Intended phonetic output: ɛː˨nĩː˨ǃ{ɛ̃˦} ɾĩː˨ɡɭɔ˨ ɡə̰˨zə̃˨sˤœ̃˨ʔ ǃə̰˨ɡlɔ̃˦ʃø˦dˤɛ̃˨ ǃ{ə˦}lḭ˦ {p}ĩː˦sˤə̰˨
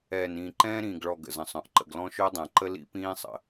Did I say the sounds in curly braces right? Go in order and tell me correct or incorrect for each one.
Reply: incorrect, correct, correct

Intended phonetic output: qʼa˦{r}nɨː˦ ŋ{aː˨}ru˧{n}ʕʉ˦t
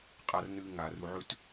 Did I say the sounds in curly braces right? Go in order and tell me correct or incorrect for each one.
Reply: correct, correct, incorrect

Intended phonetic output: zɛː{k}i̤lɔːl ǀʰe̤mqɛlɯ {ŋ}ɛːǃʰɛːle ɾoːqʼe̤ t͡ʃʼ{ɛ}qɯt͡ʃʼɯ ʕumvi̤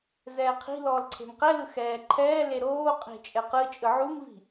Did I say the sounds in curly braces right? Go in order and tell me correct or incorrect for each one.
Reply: incorrect, incorrect, correct

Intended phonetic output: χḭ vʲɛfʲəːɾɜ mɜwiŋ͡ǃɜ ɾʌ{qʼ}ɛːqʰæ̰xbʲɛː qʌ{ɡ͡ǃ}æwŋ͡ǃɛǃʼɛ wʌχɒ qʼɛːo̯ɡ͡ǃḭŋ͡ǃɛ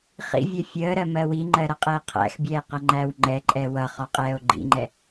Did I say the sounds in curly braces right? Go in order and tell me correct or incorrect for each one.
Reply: correct, incorrect

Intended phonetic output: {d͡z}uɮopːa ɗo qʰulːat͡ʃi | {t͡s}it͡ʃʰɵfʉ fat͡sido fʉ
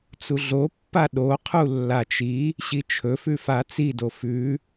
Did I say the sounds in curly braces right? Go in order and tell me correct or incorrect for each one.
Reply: incorrect, incorrect

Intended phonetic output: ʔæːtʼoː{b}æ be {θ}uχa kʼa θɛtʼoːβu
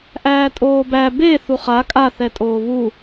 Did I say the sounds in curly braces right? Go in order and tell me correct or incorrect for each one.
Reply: correct, correct

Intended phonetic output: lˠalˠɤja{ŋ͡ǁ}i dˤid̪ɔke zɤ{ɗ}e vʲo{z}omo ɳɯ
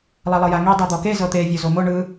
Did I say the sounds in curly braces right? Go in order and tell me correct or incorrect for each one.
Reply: incorrect, incorrect, correct

